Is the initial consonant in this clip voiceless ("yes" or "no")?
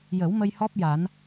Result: no